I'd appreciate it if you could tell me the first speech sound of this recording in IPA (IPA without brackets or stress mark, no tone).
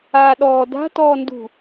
aː